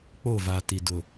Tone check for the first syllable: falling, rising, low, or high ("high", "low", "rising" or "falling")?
falling